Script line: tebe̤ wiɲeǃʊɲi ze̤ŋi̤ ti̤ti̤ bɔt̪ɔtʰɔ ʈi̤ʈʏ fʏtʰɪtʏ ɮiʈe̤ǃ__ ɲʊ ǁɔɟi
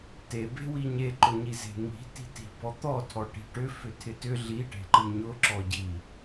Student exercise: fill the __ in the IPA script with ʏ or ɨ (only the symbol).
ɨ